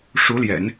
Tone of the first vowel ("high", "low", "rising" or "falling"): rising